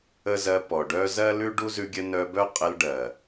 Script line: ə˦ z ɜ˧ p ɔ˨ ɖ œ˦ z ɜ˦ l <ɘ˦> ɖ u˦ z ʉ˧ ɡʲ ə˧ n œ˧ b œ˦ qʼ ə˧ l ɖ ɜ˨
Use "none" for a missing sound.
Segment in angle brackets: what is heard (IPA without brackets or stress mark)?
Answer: ʉ˦